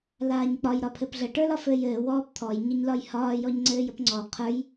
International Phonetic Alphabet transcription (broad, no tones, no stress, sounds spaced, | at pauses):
l aː ɲ k͡p ɒ j ɾ ɒ pʰ ɘ p ɮ ə ʈ ə˞ l ɒ f ɘː j ɘː w ɔː p t̪ʰ ɔ j ɲ ə ɲ l ɒ j h ɒː j ɔ ɲ ŋ͡ǀ ɘː j ə p ŋ͡ǀ ɔ qʰ ə˞ j